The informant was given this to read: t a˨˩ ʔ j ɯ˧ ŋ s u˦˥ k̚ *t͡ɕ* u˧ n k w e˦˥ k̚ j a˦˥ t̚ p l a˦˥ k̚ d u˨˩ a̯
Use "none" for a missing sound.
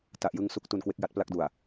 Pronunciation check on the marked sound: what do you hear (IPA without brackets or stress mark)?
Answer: t